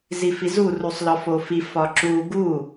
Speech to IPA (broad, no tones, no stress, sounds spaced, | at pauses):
z i f i z u r u sˤ l ɒ f o f i f ɒ ǁ u ɡ u